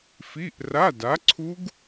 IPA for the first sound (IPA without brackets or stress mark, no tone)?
f